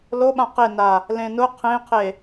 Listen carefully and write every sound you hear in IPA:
l o ɓ ã q e n a | l ẽ n ʊ qʰ ẽ qʰ e

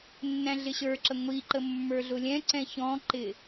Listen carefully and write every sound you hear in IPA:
nː æ̃ ɮ ɪ ɕ ə˞ ǁ ə ŋʷ i ǃ ə mː ə˞ ɮ ʊ lʲ ɛ̃ ǀ ɛ̃ ç ɔ̃ ǃ ɪ

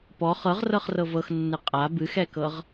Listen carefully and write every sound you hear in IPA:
p ɔ χ ɤ ʁ r ɤ χ r ɤ v ɤ x nː ɨ qʼ a b ɨ x ɛ k ɤ ʁ

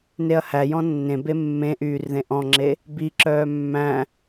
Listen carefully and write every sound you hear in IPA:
n e ɐ̯ h æ j ɔ̃ nː ẽ b e mː ẽ ʔ yː r ð ẽ ʔ ɔ̃ ŋ͡ǁ e | b i ǁ œː mː æ̃

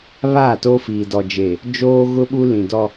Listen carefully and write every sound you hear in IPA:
β aː˦˨ t o˦ f iː˨ d ɔ˨ d͡ʒ e˨ | d͡ʒ oː˦ ɣ ʊ˦ ɓ u˦ l ĩ˨ d ɔ˦

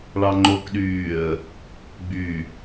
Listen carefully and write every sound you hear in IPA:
ɭ ɑ ŋ͡ǃ o k ɗ yː ə̯ | ɡ͡b y

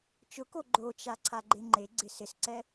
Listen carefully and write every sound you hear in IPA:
t͡ʃ ʊ k o ɡ͡ǃ o t͡ʃ a ǀʰ a ɡ͡ǃ e ŋ͡ǃ e ɡ͡ǀ ɪ s ɪ s ǀ ɛ

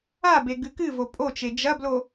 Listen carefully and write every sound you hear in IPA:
a b e ɡ ɨ k ɨ v o pʼ o t͡ʃ e d͡ʒ ɐ b l o

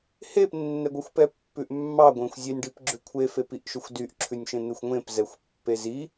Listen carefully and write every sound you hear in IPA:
h e p nː ɛ ɡʷ ɛ xʷ p ɛ pː ʉ ʔ mː ɑ ɡʷ ẽ xʷ zʲ e nʲ ɖ i p ɡ͡ǁ ʉ kʷʰ e f e p i ʔ ʃ ø xʷ d y ʔ ǁʰ ʉ nʲ ʃ ẽ n̪ e xʷ ŋʷ ẽ p z ɛ xʷ pː e z i

